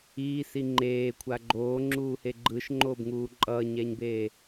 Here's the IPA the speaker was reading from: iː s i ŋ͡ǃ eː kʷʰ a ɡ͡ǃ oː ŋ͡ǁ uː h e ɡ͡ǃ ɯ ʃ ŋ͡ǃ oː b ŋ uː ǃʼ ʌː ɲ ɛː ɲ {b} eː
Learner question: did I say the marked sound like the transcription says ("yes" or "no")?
yes